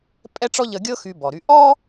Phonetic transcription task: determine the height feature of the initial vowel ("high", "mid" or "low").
mid